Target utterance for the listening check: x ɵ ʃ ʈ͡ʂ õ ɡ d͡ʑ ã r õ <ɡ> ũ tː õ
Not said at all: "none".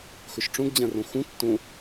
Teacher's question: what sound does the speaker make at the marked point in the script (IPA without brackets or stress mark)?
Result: x